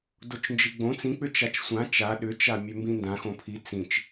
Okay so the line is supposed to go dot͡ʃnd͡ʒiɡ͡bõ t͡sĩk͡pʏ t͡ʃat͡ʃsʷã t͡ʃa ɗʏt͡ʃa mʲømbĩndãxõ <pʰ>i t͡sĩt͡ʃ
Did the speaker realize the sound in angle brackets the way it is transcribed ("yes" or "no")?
yes